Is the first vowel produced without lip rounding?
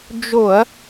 no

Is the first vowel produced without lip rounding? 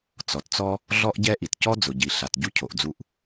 no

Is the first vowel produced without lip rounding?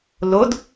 no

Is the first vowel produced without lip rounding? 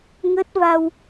yes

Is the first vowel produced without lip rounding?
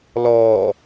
no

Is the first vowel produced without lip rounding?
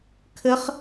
yes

